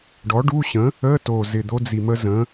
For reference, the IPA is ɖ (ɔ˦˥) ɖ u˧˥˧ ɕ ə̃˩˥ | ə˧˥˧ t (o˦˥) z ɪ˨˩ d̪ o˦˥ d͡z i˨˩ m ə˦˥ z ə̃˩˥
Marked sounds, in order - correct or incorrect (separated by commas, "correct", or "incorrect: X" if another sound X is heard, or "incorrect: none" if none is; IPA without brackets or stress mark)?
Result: incorrect: ɔ˩˥, incorrect: o˨˩